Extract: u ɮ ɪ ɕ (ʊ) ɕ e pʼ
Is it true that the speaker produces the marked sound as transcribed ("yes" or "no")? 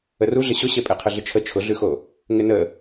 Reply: yes